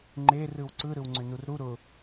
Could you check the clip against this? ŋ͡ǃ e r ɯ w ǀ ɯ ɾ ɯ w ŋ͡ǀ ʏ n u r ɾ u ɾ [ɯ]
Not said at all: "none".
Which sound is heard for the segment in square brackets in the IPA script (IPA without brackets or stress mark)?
ʊ